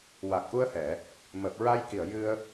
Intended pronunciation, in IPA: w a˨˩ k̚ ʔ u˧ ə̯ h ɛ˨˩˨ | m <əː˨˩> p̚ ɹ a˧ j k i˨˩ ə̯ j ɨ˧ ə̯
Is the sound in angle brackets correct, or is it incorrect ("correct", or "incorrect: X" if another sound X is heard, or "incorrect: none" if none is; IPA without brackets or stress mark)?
correct